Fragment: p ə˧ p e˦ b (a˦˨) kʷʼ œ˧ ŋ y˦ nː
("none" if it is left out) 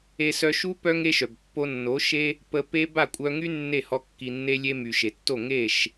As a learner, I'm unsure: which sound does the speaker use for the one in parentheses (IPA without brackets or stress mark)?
a˦˨